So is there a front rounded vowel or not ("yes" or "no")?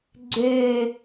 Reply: yes